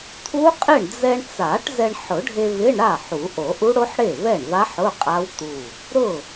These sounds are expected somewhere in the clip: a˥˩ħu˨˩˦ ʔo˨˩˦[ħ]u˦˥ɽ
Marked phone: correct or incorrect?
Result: incorrect: ʔ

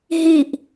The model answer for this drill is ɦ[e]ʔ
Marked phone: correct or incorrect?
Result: incorrect: i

